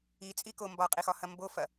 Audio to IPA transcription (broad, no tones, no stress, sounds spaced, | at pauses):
i t͡sʼ i k o m b ɒ qʼ i x ɒ h ɐ m b o f ɐ